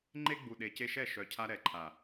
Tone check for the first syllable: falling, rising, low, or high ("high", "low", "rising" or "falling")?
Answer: high